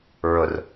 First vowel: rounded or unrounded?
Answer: rounded